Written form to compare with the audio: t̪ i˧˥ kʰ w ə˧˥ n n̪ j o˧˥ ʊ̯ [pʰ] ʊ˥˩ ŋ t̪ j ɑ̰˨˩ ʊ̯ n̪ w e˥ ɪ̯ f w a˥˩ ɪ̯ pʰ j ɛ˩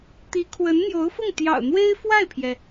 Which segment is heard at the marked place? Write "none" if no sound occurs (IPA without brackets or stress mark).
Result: f